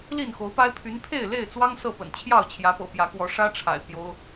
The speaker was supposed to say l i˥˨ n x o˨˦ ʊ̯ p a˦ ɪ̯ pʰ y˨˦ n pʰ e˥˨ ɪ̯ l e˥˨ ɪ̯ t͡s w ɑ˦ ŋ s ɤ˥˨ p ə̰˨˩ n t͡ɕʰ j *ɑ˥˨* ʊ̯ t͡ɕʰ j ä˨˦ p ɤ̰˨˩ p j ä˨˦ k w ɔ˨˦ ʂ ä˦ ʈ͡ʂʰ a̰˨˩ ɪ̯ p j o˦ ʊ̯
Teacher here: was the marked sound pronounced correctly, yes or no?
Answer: yes